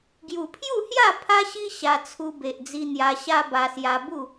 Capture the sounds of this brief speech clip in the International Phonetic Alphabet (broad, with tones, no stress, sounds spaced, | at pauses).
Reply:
ɡ j u˨˩ pʰ j u˥˧ h j a˥˧ pʰ a˦ ɕ i˦ ɕ a˧ t͡sʰ u˧ b e˨ ʔ d͡z i˧ n̪ j a˧ ɕ a˦ b a˧ s j a˧ b u˥˧